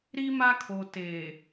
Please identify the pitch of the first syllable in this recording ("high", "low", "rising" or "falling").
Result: high